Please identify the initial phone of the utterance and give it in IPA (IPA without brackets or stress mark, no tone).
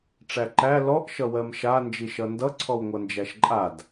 ʈ͡ʂ